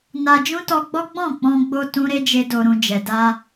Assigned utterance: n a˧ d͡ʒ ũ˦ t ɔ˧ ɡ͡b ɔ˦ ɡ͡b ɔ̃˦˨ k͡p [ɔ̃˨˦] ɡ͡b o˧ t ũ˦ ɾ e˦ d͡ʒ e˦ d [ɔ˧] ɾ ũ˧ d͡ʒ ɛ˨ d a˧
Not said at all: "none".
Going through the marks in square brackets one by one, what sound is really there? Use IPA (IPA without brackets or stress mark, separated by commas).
ɔ̃˧, o˧